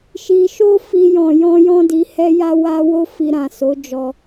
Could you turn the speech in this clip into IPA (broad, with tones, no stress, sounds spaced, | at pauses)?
ʃ i˧ ʃ o˦ f i˧ j ɔ̃˨ j ɔ̃˧ j ɔ̃˦ d i˧ h ɛ˦ j a˦ w a˦ w o˦ f i˧ ɾ ã˨ s o˨˦ d͡ʒ ɔ˧